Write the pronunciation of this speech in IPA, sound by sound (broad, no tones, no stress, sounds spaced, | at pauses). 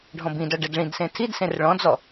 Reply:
ɖʱ ɔ̃ b ĩ d ɔ ɖ ɛ d ɭ ĩ d s ẽ tʰ i d s ẽ r ɭ ɔ̃ d͡z ɔ